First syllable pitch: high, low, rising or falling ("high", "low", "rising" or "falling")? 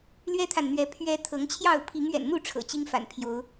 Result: high